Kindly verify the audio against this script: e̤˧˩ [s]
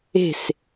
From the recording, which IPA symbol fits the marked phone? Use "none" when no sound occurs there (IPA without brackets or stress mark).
s